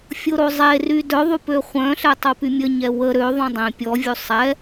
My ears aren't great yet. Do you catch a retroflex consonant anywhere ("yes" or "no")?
no